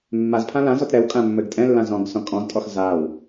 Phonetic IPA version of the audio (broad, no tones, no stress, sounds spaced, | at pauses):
mː a z pʰ ã l ã z ɔ t ɾ ɛ w kʼ ã mː ɘ ɡ tʼ ɛ̃ lː ã z ɔ̃ ɡ s ɔ̃ kʼ ɔ̃ z tʼ ɔ x z a w